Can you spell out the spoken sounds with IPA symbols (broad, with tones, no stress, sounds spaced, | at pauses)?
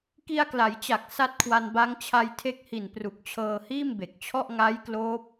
k i˧ a̯ k l a˩˦ j t͡ɕ a˨˩ k̚ s a˦˥ t̚ kʰ w a˧ n b a˦˥ ŋ t͡ɕʰ a˧ j tʰ e˦˥ k̚ h i˨˩ n p r u˨˩ k̚ t͡ɕʰ ɤː˧ h iː˥˩ m b e˨˩ k̚ t͡ɕʰ ɔ˥˩ ʔ ŋ a˦˥ j k l oː˦˥ p̚